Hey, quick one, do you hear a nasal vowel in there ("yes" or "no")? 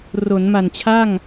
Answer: no